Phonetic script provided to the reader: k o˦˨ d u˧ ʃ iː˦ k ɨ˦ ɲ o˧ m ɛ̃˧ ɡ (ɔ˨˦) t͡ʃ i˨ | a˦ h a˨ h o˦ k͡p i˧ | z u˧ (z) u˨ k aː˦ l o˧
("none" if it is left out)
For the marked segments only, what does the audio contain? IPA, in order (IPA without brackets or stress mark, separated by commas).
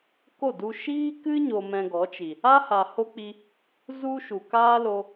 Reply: ɔ˨˦, ʃ